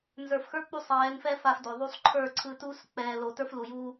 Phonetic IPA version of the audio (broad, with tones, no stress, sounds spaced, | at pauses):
n z ə˞˨ f x ə˞˦ k͡p u˧ sˤ ɛː˨˦ n f ɛ˦ f a˧ f d o˨ ðˤ u˦ sˤ ǃʰ ə˞˦˨ ǀʰ ɯ˧ t uː˦ s k͡p ɛː˨ l o˨ t ə˞˦ f l u˨ j uː˧